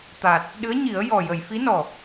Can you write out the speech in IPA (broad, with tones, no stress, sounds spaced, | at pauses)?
t̪ a˨˩ t̚ | ɗ ɨ˧˥ ə̯ ɲ i˨˩˦ ə̯ j ɔ˨˩ j ə˨˩˨ j f i˧˥ n ɔ˨˩